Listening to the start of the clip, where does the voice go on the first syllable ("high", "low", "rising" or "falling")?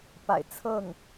low